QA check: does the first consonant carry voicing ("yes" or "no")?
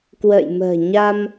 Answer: no